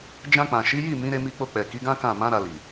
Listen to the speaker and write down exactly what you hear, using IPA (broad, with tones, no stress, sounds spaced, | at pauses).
d͡ʒ ã˧ k͡p ã˨ ʃ i˨˦ j i˦˨ m ĩ˨˦ ɾ e˧ m i˧ k͡p o˧ k͡p ɛ˨ k i˨˦ ɡ ã˦ k ã˦˨ m ã˨˦ ɾ a˧ l i˨